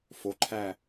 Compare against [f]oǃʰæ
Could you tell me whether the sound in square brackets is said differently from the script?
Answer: no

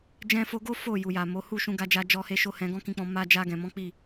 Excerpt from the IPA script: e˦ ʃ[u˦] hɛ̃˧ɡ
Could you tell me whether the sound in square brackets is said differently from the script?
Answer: yes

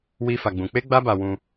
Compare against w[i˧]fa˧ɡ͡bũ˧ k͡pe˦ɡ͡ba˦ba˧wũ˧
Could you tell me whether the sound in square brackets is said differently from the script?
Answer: yes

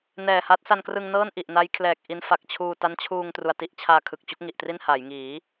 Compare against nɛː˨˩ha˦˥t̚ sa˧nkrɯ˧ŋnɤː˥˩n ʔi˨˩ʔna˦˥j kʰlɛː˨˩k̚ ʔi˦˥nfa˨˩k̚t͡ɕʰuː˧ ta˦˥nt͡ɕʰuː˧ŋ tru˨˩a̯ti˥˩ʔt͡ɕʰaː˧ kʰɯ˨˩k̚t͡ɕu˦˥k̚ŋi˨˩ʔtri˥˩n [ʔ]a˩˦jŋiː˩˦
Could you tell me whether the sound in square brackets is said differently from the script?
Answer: yes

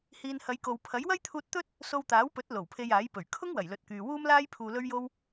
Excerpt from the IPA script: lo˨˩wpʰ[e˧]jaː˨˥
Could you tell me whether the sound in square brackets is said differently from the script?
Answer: no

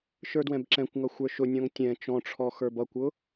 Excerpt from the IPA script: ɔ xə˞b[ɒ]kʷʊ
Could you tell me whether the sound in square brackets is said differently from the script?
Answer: yes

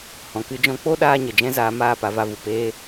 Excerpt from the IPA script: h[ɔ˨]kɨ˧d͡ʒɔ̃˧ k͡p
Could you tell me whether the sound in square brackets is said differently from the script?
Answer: yes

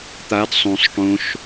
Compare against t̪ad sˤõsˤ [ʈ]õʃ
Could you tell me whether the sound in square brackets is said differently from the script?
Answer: no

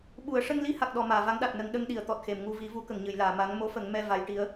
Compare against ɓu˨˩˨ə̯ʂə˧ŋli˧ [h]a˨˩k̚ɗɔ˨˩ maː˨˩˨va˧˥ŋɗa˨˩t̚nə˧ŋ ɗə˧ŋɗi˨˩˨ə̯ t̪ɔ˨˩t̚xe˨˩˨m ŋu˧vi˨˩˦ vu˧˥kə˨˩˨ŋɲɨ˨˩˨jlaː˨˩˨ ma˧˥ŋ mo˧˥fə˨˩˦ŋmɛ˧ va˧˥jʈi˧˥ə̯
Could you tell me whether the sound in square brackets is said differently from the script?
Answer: no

